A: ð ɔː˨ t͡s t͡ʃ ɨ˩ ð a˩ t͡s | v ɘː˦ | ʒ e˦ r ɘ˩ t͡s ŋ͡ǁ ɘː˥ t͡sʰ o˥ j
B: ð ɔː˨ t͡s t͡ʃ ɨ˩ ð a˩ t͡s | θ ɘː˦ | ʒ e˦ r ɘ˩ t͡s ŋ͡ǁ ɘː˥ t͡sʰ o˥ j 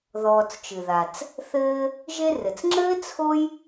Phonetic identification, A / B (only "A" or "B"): B